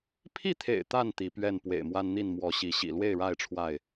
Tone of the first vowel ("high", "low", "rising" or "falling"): falling